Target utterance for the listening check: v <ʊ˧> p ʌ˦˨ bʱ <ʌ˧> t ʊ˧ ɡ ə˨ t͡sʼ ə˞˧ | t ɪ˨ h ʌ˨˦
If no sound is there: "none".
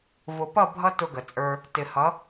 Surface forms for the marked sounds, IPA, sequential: ʊ˨, ʌ˧

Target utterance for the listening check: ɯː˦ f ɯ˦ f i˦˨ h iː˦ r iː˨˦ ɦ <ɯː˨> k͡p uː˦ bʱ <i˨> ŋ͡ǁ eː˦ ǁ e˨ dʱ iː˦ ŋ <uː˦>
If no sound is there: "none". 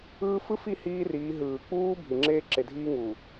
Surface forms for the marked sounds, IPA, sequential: ɯː˨, i˨, uː˨

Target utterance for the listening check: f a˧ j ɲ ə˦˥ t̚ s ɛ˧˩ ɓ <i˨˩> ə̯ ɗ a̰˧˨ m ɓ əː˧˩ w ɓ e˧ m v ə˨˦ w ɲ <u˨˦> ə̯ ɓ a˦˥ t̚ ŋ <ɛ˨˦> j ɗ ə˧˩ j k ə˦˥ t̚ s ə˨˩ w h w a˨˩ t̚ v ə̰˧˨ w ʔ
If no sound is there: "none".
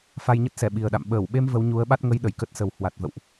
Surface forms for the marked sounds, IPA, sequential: i˨˩, u˨˦, ə˨˦

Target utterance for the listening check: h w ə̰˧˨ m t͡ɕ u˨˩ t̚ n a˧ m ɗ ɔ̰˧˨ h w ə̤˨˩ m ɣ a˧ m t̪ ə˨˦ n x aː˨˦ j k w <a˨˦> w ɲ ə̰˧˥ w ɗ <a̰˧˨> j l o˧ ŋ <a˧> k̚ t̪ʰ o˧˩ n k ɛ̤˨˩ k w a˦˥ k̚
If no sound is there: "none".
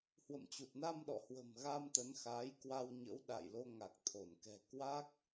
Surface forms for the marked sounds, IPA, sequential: a˧, a̰˧˨, a˨˩

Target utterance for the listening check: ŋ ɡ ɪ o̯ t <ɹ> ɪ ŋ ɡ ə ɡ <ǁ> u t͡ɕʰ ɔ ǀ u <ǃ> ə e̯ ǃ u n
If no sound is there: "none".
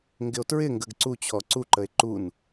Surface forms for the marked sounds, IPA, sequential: ɹ, ǀ, ǃ

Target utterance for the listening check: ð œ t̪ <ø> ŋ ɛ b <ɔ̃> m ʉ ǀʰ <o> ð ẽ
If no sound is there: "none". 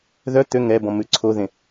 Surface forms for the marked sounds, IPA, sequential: ø, ɔ̃, o

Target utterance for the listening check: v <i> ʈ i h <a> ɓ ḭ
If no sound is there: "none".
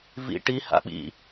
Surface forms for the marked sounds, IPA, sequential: ḭ, a̰

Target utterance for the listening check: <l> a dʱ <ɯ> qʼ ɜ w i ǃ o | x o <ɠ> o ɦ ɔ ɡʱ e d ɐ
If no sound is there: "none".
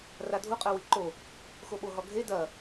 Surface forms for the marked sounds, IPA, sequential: r, u, ɓ

